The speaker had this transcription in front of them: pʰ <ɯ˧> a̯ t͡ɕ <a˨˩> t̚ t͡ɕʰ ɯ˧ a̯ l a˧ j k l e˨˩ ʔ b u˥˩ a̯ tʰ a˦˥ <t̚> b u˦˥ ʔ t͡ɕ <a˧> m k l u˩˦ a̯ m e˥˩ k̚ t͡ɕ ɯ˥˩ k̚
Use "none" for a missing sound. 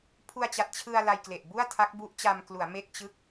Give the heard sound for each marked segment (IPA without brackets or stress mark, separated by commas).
u˧, a˨˩, k̚, a˧